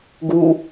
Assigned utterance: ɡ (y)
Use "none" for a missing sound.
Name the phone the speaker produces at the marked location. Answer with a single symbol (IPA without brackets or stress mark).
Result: u